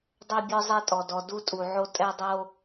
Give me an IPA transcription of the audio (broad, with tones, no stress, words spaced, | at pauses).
dˤɛ˦ bʲɔ˦zˤi˦˨tʼɔ˨dɔ˨ du˦tʼu˨ʕo˦ tʼɛ˦dˤo˦